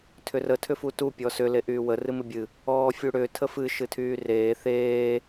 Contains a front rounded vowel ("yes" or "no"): yes